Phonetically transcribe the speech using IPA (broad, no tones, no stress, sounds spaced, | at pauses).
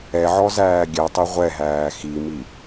ɛ ʕ ɔ z æː ɡʲ ɛ tˤ i ʁʷ ɛ ɦ æː x i m i